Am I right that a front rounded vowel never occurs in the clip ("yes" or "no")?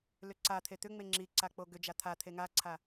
no